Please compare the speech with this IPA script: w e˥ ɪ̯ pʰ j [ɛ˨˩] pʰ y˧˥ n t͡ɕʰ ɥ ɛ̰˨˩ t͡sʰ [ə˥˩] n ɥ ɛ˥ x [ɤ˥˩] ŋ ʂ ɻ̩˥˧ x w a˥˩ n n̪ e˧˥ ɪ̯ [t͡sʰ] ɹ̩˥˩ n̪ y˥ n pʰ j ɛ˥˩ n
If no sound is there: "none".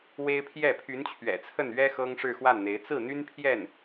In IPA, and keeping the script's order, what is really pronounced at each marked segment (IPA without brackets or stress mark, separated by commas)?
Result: ɛ˥˩, ə˥˩, ɤ˥, t͡s